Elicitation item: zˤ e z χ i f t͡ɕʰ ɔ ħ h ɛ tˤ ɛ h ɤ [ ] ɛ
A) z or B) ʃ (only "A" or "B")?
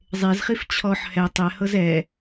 A